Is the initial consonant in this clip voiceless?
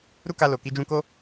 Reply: no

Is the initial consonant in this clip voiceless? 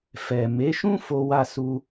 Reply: yes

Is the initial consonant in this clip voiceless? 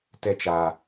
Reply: yes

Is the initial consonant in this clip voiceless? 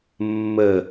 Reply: no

